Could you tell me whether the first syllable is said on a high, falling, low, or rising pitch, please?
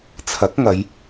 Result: rising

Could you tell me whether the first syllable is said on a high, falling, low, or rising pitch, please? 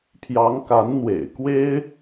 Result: rising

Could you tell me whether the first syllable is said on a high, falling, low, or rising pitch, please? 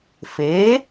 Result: rising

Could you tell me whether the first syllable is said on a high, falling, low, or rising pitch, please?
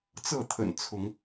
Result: falling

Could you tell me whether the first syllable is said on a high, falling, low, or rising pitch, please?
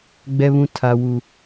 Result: high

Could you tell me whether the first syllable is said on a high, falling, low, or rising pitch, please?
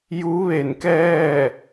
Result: rising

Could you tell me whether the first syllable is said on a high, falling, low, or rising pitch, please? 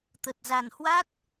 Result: low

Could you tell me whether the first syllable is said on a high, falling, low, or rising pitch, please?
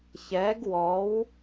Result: rising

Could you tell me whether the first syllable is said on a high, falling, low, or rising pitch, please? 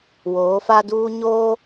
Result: rising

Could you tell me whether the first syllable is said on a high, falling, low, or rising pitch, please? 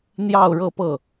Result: falling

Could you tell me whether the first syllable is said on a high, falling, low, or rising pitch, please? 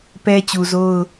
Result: high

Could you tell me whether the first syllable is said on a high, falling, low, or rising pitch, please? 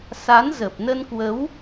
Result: rising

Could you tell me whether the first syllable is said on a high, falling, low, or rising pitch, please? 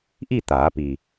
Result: falling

